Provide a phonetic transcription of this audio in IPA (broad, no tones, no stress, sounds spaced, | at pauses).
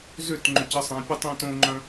z ʏ t ŋ͡ǃ ʏ c ə sˤ ɛ̃ pʲ ə tˤ ẽ t õ ŋ͡ǃ œ̃